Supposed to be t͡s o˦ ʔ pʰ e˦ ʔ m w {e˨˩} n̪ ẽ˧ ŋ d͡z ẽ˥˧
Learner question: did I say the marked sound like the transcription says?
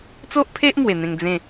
yes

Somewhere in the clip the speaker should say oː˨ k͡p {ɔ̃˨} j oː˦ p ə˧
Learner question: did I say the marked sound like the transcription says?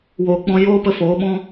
no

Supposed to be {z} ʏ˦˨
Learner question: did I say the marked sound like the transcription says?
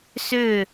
no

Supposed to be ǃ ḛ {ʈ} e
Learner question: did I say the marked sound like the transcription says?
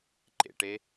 yes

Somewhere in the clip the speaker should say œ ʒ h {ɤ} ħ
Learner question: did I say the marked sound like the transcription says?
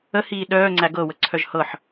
yes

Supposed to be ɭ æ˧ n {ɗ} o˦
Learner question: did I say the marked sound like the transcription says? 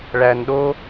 yes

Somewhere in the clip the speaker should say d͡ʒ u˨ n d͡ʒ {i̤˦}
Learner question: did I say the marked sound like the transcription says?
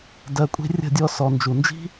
yes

